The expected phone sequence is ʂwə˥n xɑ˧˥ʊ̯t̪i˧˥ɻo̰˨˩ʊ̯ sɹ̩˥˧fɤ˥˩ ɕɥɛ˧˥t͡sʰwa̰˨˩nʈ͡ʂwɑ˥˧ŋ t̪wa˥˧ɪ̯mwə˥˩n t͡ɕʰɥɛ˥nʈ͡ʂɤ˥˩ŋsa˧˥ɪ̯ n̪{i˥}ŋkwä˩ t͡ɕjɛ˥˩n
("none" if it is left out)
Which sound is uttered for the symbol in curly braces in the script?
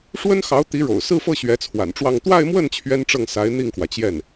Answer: i˥˩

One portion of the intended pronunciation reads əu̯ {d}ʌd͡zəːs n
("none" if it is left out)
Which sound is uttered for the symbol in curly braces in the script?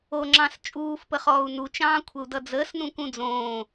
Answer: d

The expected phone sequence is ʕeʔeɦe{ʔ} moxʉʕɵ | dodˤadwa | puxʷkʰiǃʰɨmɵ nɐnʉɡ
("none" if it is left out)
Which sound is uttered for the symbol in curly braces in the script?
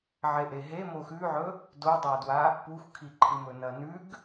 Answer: none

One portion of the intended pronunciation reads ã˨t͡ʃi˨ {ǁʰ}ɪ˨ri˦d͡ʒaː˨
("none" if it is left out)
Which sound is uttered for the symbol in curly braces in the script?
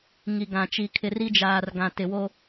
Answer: kʰ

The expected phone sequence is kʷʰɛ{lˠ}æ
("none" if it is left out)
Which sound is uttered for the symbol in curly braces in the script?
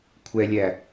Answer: lʲ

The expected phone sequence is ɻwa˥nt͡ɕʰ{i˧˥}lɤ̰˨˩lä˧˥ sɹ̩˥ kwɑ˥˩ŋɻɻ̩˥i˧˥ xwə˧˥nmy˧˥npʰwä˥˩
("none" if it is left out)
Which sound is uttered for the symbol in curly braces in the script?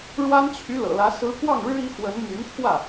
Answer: y˧˥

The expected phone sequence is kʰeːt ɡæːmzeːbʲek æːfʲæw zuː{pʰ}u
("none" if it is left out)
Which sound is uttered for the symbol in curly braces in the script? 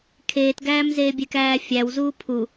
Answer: pʰ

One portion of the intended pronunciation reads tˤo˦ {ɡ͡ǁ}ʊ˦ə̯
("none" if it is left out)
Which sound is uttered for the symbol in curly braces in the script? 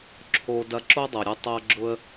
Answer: ɡ͡ǁ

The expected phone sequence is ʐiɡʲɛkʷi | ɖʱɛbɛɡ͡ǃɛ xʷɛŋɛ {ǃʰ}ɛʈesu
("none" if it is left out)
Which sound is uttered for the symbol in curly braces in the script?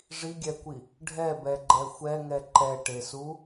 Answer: ǃ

